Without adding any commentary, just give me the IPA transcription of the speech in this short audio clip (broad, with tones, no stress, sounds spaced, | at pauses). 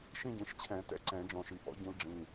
ʃ ĩ˥˧ ɟ ĩ˩˧˩ ʃ t͡ɕʰ ɛ̃˨˩˦ t ɛ̰˧˥ ǀ ɛ̃˨˩˦ d͡ʒ ɔ̃˨˩˦ ʃ i˩˧˩ ʔ ɔ̰˧˥ ɟ ĩ˧˥ l ɖ͡ʐ ĩ˩˧˩